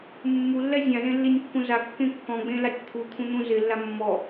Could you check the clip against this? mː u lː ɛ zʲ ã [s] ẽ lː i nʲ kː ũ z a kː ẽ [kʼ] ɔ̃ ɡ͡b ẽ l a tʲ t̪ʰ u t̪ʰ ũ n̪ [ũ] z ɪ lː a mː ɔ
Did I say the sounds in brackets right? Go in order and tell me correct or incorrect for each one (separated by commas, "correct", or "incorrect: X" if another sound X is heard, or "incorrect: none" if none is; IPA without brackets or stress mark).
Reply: incorrect: z, incorrect: kː, correct